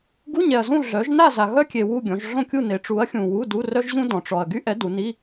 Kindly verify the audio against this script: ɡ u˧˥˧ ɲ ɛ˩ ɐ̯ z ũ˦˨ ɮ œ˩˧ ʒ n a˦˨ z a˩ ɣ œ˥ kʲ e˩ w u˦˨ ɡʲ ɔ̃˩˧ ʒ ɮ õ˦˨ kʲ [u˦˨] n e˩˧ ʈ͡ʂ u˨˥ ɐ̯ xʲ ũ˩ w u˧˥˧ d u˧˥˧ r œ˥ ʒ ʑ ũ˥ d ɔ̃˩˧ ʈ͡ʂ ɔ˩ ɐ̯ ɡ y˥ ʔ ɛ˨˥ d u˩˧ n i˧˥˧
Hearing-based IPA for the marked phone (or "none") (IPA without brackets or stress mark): u˦˨